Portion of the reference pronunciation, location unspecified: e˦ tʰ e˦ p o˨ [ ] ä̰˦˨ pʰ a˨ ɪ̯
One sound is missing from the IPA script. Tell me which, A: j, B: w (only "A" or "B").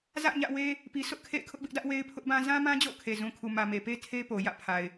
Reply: A